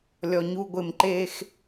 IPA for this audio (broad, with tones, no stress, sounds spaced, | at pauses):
lʲ ɔ˨ ɲ u˧ ɡʷ ɪ˨ m ǃ e˧ x